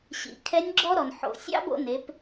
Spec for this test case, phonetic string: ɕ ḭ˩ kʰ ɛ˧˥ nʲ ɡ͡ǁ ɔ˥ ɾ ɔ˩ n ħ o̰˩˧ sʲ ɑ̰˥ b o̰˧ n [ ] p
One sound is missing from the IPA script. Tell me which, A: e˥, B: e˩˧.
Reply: B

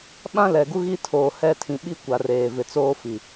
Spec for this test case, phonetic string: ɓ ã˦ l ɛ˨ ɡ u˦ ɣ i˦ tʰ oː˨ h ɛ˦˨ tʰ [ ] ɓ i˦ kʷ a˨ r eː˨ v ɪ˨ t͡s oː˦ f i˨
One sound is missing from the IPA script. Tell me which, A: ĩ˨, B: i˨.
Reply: A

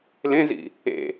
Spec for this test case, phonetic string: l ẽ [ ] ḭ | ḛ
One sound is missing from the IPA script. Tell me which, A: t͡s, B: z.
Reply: B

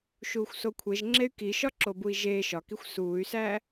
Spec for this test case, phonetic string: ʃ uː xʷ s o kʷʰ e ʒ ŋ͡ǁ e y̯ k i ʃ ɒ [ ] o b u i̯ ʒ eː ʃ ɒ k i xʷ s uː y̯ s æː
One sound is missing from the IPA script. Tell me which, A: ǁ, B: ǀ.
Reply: A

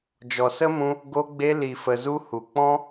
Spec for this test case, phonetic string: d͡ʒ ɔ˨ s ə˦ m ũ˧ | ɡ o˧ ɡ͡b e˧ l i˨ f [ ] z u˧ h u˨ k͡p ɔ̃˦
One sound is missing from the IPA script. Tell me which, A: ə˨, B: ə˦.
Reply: A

